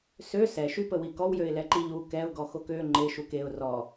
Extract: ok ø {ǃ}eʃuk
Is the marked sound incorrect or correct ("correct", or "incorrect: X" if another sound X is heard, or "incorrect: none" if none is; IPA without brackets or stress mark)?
incorrect: ŋ͡ǃ